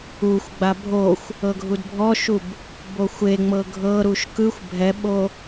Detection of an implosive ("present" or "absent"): present